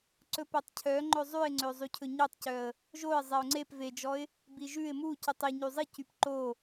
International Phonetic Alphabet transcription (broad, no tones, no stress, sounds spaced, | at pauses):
ǀ ɵ p e tˤ cʰ œ ŋ͡ǃ ɵ zˤ ʉ ɪ̯ ŋ͡ǀ ø zˤ y cʰ ɵ ɲ ø tˤ c œ ə̯ | ʒ o ɪ̯ zˤ ɛ ʊ̯ ŋ͡ǀ e p v e d͡ʒ ɔ ɪ̯ | b i ʒ ʉ ɪ̯ m u c y tˤ e ɲ y zˤ i c y p ǃ o